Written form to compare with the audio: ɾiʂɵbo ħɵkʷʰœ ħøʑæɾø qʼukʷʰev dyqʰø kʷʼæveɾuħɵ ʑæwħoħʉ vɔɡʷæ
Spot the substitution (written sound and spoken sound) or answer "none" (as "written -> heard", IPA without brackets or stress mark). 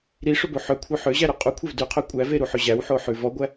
none